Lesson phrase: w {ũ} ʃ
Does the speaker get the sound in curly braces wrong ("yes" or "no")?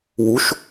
yes